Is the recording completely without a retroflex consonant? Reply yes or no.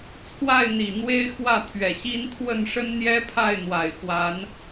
no